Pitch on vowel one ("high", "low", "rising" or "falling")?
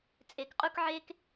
low